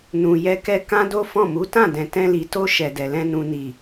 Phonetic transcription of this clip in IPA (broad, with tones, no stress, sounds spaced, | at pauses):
n ũ˨ j ɛ˧ k ɛ˧ k ã˦ d o˦ f ɔ̃˦˨ m u˨˦ t ã˦˨ d ɛ̃˨ t ɛ̃˧ l i˨ t o˧ ʃ ɛ˨ d ɛ˨ l ɛ̃˧ n ũ˨ n i˨